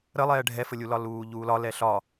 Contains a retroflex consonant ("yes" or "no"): yes